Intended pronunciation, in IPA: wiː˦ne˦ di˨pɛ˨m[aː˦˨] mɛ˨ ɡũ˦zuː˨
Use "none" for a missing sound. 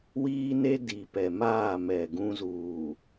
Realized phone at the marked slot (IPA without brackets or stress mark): aː˦˨